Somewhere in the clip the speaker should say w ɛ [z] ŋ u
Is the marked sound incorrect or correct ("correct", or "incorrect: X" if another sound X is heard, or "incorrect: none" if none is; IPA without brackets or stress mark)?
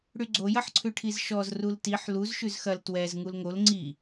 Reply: correct